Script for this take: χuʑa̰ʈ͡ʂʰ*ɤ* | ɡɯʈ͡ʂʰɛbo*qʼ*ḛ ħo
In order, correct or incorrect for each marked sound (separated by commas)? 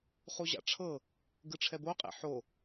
correct, correct